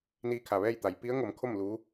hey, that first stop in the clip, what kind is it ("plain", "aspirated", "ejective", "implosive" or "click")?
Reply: aspirated